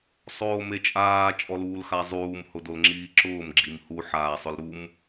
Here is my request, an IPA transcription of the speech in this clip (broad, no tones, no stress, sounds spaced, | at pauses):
sˤ oː m e t͡ʃʼ aː t͡ʃʼ ɔ l uː l x a zˤ uː m h ʊ d o l ŋ͡ǁ iː ǁ ʊː m ɡ͡ǁ i m h u ħ aː sˤ ʊ l ɾ u m